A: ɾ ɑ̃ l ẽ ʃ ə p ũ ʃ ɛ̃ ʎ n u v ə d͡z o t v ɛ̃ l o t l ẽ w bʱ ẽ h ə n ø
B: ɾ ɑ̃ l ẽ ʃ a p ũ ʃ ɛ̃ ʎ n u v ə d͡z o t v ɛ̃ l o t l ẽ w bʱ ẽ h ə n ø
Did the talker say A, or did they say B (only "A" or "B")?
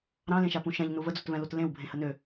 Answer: B